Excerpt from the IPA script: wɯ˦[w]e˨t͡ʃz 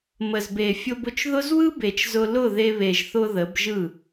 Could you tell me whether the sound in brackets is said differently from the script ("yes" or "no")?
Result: yes